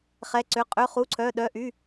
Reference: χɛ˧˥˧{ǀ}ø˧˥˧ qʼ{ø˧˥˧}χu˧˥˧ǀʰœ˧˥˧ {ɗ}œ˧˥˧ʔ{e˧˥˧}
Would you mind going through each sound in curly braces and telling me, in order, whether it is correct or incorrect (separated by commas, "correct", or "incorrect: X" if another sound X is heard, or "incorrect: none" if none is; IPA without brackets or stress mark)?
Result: correct, correct, correct, incorrect: y˧˥˧